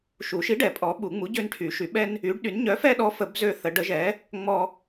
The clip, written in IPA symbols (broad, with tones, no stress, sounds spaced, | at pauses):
ʃ u˨˩˦ ʃ i˨˥ ɖ ɛ˨˩˦ pʼ ɔ˨˥ ɓ u˨˩˦ ŋ͡m u˨˥ ɟ ø˦ n ʈʰ y˨˩˦ ʃ y˨˩˦ ɓ ɛ˦ n | y˨˥ ɖ ɗ y˨˥ n ɲ œ˨˥ f ɛ˦ ɗ ɔ˨˥ f ə˨˩˦ b z ø˦ θ ə˨˩˦ ɖ ə˨˥ ʒ ɛ˨˥ | ŋ͡m ɔ˦